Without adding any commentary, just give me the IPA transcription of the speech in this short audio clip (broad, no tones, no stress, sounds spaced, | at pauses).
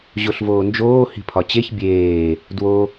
ʑ o ɬ v oː n d͡ʒ oː h i̤ pʰ ɒ t͡ɕ e ç bʲ eː | d w o